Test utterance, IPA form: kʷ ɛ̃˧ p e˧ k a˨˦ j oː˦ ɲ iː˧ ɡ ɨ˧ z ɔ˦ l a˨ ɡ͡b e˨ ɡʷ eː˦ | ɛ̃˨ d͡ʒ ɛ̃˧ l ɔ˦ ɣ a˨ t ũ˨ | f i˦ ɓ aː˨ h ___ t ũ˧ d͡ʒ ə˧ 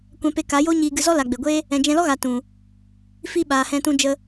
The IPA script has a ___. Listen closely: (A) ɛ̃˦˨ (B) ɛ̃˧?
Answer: B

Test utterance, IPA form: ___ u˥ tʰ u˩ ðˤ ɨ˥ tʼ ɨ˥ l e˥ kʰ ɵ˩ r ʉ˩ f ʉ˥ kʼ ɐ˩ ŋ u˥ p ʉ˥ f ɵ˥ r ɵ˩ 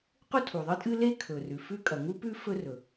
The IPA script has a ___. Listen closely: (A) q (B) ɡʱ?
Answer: A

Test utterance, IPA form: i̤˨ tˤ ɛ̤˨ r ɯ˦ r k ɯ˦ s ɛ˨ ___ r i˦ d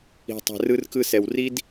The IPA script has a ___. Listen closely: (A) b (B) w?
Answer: B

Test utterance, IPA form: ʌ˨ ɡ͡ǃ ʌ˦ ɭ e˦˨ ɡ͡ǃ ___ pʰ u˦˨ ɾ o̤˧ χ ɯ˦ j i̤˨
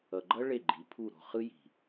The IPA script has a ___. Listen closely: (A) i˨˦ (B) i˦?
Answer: A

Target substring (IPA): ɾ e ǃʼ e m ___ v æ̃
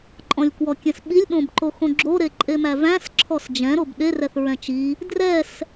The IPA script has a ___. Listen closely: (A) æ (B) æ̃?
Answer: A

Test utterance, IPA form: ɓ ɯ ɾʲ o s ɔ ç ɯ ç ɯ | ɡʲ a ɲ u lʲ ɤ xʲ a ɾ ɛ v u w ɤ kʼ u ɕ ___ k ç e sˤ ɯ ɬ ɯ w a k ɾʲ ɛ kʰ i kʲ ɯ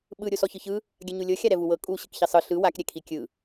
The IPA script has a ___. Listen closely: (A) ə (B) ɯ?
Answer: B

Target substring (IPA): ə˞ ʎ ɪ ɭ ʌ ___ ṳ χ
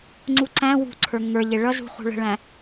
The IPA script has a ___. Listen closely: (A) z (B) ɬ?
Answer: A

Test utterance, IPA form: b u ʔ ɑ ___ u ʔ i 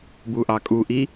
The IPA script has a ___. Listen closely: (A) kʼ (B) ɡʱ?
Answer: A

